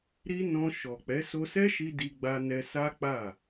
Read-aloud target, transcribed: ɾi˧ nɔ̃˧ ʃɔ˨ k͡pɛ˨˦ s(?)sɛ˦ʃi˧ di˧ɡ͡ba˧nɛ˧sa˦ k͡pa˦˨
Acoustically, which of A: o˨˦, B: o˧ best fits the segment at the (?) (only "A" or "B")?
B